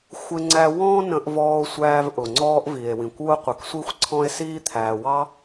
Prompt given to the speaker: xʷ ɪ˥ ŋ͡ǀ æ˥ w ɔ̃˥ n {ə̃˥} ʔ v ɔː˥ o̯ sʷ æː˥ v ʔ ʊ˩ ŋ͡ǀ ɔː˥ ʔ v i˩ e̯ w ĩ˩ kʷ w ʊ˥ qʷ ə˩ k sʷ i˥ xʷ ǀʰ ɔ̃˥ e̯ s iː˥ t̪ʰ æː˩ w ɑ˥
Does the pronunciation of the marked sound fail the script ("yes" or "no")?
no